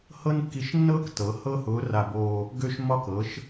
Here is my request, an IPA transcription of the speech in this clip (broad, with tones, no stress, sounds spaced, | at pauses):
h ɤ˥ n kː i˧˥ ʃ nː ɤː˥ k t ɤ˩˧ h ɤ˥ h ʊː˧˥ r a˧ b oː˧ | ɡ ø˧ ʃ m ɒ˧ k ɤ˩˧ ʃ